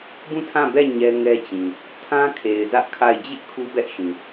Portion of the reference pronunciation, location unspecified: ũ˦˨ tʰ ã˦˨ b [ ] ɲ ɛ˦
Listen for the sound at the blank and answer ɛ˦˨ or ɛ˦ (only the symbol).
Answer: ɛ˦˨